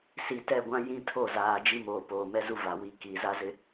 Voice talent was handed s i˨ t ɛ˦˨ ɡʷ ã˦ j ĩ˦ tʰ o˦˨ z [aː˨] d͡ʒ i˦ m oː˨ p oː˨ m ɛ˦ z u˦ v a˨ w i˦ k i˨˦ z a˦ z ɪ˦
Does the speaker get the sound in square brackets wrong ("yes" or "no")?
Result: no